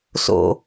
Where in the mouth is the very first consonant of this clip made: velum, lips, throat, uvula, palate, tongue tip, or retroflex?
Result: tongue tip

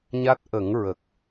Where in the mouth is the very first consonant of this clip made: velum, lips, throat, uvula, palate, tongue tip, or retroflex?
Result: palate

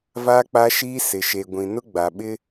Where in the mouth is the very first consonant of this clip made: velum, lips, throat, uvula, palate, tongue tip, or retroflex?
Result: lips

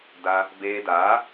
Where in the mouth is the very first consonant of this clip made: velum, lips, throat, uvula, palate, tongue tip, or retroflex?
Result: tongue tip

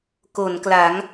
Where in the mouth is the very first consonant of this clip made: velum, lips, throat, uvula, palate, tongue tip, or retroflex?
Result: velum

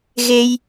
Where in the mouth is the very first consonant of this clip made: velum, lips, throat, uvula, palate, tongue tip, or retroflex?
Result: velum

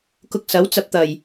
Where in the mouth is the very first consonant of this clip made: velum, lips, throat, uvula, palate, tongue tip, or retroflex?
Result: velum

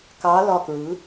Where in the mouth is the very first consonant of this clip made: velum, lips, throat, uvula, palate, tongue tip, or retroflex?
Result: velum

